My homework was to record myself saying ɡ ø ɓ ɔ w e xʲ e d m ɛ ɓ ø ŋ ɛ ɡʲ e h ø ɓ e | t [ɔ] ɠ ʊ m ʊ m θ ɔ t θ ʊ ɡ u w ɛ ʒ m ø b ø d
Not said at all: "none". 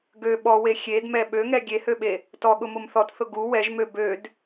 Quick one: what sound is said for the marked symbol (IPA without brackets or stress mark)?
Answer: ɔ